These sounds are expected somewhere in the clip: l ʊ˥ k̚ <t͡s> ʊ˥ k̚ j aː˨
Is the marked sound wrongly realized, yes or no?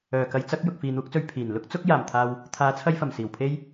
no